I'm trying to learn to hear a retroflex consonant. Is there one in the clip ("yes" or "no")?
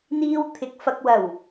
no